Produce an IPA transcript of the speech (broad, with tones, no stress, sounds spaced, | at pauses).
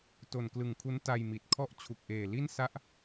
t o˨˩ n k l ɯ˨˩ ŋ kʰ u˦˥ n t a˧ j m i˨˩ t̚ kʰ ɔ˥˩ ʔ t͡ɕʰ u˨˩ k̚ ʔ eː˨˩ l i˥˩ n s a˥˩ ʔ